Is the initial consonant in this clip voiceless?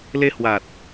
no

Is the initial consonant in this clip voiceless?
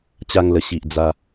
yes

